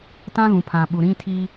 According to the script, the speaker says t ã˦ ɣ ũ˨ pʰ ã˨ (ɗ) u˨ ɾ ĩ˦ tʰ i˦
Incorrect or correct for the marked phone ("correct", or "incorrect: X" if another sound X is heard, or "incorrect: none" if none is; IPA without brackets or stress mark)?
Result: incorrect: ɓ